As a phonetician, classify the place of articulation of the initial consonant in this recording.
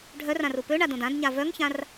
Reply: retroflex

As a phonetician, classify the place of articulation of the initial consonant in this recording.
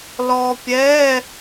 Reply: alveolar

